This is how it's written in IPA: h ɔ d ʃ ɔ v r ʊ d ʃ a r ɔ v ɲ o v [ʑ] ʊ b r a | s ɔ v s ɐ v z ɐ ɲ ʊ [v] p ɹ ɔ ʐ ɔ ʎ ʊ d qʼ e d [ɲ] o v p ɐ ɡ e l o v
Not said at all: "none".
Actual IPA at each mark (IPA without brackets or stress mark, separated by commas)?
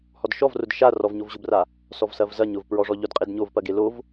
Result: ʑ, v, ɲ